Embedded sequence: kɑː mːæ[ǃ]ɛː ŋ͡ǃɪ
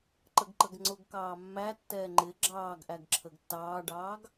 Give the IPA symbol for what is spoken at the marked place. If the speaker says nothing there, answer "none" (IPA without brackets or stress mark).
tː